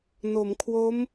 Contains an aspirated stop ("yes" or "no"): yes